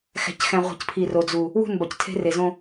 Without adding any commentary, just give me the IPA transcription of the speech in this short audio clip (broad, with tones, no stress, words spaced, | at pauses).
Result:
xæ̤˨cxæ̃˨ ʁʷi̤˨cpʰi˨ ro˨d͡zu˨ | wṳ˦˨n bɒ˨ctʰe̤˦re˨zõ˦